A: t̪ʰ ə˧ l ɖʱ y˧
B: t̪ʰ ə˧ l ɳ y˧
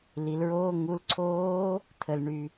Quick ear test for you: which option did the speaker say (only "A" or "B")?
B